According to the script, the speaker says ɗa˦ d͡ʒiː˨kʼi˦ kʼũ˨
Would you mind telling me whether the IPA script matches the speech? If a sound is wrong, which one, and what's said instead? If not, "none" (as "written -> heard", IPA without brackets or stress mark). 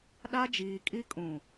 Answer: none